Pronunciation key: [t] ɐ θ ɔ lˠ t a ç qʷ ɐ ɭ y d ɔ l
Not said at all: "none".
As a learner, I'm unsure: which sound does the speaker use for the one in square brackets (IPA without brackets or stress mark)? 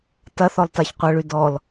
t